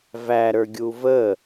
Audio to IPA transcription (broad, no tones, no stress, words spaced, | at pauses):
væɾə˞ɡʲu və